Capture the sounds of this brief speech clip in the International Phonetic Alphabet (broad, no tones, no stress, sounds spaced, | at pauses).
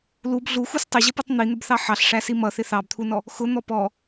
l u b ɮ u x u s tˤ ɪ ʑ ə p u tˤ n̪ i n̪ ə b θ ɑ ħ ɑ ɬ ʂ æ s i m ʌ θ ɪ θ ɑ b t̪ʰ u n ɔ | x ʊ n̪ ɔ p ɔ